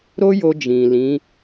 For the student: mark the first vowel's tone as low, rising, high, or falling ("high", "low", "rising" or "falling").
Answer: high